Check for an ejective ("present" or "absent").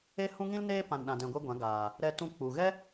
absent